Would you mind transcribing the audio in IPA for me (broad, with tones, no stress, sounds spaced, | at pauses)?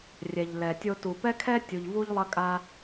rʲ ɛ˨ ʎ l ɛ˨ tʲ o˧ t u˨ p ɛ˦ kʰ ɛ˦ tʲ u˨ ʎ v u˧ ʎ lˠ ɐ˧ kʼ a˧